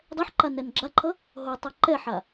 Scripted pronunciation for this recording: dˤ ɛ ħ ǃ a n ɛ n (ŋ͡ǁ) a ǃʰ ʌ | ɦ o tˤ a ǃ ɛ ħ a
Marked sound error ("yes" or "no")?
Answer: yes